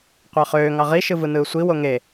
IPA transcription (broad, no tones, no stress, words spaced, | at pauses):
qʷɑχøː ŋɑʁi ʃɯvɯnɯːsʷi woŋe